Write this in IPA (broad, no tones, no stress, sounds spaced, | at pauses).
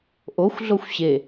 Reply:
ʔ o xʷ ɮ o xʷ ɕ e